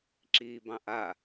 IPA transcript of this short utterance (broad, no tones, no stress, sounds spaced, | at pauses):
ǁ iː b ɑ̃ ʔ a